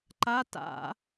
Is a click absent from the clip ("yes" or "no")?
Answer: no